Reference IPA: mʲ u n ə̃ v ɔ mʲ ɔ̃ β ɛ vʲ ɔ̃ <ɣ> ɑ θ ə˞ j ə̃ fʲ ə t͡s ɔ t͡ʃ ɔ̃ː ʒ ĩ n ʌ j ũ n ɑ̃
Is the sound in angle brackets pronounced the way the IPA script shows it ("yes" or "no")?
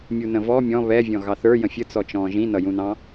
yes